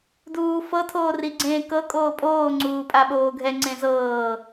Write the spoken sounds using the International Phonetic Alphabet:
duːfɤ tʰoːriɡ͡ǀẽːkɤ kʼoːpʼoː ŋ͡ǀuːpʼaɓoːɡʱɛ ŋ͡ǀẽzɤː

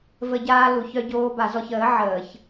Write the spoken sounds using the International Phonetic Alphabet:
və˧˩˧ɟaː˧ lu˩çœ˧ɟoː˧ ba˧˩˧zɔ˧ç əː˩˥ ʕəː˧˩˧ç

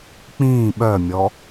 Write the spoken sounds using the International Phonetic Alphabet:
k͡pĩː ɓœmʲɔ

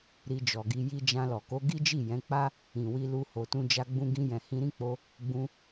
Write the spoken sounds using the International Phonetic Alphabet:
ɾi˧d͡ʒɔ˨ɡi˧ ji˧d͡ʒã˧lɔ˨ ko˨˦ɡi˦d͡ʒi˦˨ jɛ̃˨˦k͡pa˦ | ĩ˨wi˧ lu˧ ho˨tũ˧d͡ʒa˧ ɡ͡bũ˧ɡĩ˧jɛ̃˨ hĩ˧ɾĩ˦k͡po˧ | ɡ͡bũ˧

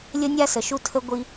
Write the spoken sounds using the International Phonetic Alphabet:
lʲə˥nʲa˥sə˩ ʃu˥tʰə˥ ɡʷi˥

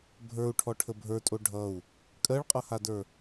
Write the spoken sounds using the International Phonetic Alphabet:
bʱə˞u̯ʈʰɔʈʰə bʱə˞tʼo ɖʱʌu̯ | kʼɜɭqʼʌhadə˞

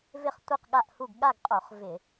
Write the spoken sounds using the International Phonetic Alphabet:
vɪ˥˨χtʷi˥˨qɠa˥˨ʔhu˥˨ɡ ɠa˥˨ɡqʼo˧˩˧χ vɪ˧˩˧

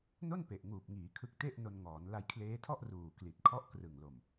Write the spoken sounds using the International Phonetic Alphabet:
no˥˩npe˨˩ʔŋuː˨˩p̚ŋiː˩˦ kʰɯ˦˥k̚ te˥˩ʔno˧nŋɔː˩˦n la˧jkʰleː˦˥tʰɔ˥˩ʔ ruː˨˩kli˨˩t̚kʰɔ˦˥ʔ krɯ˨˩ŋlo˨˩m

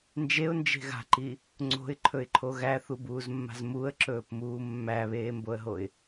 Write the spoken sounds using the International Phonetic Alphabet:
nd͡ʒeʊ̯nd͡ʒe̤ ɣa̤ǃi | ŋ͡ǀo̤ɪ̯ǃʰɵɪ̯ǃʰo ɣæθubuːzmːa̤z muə̯ǁɵːpmuː mːæβeːmboə̯ɦoɪ̯

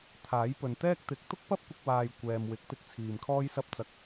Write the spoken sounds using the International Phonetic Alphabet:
t̪ʰaː˨˥j pɵ˨nt̪ɛː˥k̚ t̪ɪ˨˥k̚ t̪ʊ˥k̚pɐ˥p̚kʷɪ˧k̚waː˨j kʷɛː˨mwɪ˨˥k̚ t̪ɪ˧k̚t͡sʰiː˨m kʰɔː˥jsɐ˥p̚ t͡sɐ˧k̚

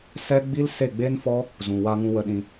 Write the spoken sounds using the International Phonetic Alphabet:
sɛ˦ ɡ͡bi˦lse˦˨ɡ͡be˦nfɔ˦ | zũ˨wa˧ŋũ˧ wə˧ɗĩ˧

